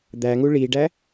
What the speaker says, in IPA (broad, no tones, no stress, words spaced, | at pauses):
d̪æŋu ɭiɖæ